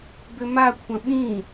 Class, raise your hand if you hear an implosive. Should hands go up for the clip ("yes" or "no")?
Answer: yes